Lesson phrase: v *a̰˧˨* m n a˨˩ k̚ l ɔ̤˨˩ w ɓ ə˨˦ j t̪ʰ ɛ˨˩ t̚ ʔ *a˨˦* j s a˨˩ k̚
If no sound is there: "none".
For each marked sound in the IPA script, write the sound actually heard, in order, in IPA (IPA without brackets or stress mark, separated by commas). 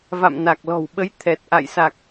a̰˧˨, a̰˧˨